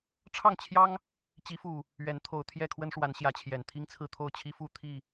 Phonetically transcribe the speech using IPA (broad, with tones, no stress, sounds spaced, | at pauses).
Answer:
ʈ͡ʂʰ ɑ˥˨ ŋ t͡ɕʰ j ɑ˦ ŋ | t͡ɕ i˨˦ f u˨˩ | ɥ ɛ˨˦ n t̪ʰ o˨˩ ʊ̯ t̪ʰ j ɛ˥˨ kʰ w ə˦ n ʂ w a˨˦ n ɕ j ä˨˦ t͡ɕʰ j ɛ˨˩ n t̪ʰ i˦ ŋ t͡sʰ ɹ̩˥˨ t̪ʰ o˥˨ ʊ̯ t͡ɕʰ i˦ f u˥˨ t̪ʰ i˥˨